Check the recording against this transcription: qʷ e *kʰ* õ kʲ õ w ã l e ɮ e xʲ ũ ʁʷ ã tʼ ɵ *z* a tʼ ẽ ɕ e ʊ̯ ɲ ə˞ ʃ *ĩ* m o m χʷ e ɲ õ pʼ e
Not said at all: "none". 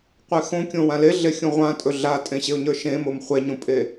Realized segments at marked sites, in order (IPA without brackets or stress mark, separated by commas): x, ɮ, ẽ